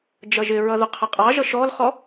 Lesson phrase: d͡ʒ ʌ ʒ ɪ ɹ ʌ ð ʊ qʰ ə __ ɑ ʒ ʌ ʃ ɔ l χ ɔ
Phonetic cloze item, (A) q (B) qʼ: B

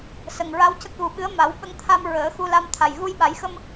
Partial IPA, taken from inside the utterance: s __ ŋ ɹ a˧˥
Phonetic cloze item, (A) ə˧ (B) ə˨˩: B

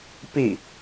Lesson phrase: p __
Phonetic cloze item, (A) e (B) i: B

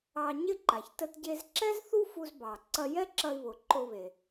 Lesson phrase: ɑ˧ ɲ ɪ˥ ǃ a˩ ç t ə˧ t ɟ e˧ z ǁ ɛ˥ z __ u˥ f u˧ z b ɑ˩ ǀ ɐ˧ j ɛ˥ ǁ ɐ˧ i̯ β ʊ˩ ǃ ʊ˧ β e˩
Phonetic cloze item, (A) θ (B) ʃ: A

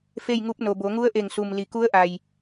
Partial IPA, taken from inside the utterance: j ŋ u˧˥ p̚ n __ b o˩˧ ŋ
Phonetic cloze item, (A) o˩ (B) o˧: A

